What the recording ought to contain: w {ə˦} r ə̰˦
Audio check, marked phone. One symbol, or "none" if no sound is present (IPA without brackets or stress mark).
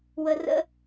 ə˦